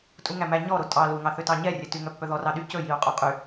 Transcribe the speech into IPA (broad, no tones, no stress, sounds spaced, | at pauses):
tʼ u ŋ æ m æ ɲ ɔ ɾ o tʼ ɑ l u ŋ ɑ θ ø t ɑ ɲ ɛ rʲ ɛ t y ŋ œ pː œ ð ɔ r ɑ ɗ y c ɵ j i u̯ qʼ o qʼ y